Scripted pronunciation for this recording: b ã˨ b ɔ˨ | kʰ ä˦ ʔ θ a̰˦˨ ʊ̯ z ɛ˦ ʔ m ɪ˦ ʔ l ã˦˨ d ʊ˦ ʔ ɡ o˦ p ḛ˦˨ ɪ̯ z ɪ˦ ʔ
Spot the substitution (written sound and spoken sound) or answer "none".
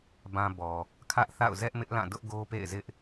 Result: none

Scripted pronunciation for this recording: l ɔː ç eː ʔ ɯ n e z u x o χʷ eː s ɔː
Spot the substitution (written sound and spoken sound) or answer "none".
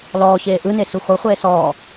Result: z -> s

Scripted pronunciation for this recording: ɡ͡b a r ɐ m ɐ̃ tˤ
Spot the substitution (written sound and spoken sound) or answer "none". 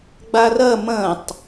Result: none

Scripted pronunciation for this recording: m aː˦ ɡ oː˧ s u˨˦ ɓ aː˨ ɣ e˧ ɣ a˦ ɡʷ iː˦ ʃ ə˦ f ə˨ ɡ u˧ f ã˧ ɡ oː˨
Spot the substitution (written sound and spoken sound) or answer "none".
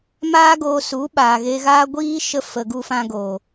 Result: a˦ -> aː˦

